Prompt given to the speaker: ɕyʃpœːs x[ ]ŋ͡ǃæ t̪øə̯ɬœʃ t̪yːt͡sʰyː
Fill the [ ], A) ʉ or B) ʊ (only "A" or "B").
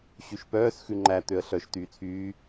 A